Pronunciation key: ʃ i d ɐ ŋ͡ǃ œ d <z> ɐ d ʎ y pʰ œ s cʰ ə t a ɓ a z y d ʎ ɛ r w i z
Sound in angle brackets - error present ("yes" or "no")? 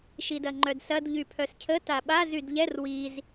yes